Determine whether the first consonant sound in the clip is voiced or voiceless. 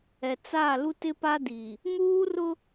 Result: voiceless